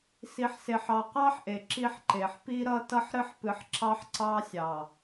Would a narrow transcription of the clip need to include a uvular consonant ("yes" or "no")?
yes